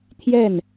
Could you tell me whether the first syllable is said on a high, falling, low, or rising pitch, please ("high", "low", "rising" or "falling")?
falling